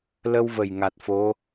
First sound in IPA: l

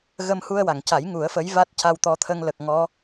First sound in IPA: ɣ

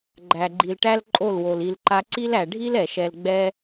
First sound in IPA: ɡ͡ǃ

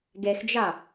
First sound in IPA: ɡ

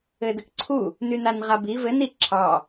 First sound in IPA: ɘ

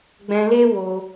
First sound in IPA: ɡ͡b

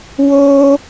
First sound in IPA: w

